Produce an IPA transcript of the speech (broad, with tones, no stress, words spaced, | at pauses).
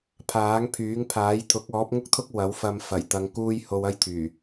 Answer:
pʰaː˨˥ŋpʰyː˨˥ŋpʰaː˨˥j t̪ʰʊ˨˥k̚ɔː˨˥p̚ŋʊ˥k̚t̪ʰʊ˥k̚ wɐ˨˥wfɐ˧m fɐ˨˩jt̪ɐ˨˧ŋ kuː˧j ho˧wɐ˥jt̪ʰyː˨˩